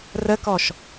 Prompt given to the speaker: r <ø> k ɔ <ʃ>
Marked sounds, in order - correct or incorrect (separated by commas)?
incorrect, correct